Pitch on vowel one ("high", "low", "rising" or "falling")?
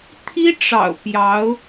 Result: high